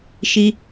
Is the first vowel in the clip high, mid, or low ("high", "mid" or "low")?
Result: high